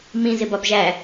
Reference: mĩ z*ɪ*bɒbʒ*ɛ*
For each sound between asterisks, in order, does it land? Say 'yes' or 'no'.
yes, no

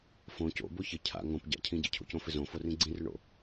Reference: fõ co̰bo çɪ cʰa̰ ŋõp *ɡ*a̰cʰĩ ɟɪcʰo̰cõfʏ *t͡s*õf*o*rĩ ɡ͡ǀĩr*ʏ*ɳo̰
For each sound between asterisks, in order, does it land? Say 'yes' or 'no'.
no, no, yes, yes

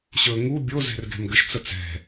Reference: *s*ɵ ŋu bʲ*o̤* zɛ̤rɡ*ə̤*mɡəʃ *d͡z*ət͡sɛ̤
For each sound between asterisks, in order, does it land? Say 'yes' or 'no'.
no, no, no, no

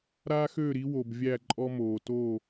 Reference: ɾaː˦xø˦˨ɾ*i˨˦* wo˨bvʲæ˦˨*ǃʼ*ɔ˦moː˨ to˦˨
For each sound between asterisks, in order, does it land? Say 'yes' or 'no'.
yes, yes

